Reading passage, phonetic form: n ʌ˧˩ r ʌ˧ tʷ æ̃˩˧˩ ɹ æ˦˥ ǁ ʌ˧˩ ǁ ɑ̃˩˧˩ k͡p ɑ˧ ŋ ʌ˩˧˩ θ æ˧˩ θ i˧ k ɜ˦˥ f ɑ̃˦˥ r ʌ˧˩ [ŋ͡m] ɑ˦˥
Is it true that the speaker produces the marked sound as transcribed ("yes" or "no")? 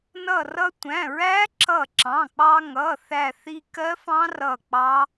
no